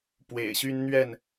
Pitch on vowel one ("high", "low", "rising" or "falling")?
low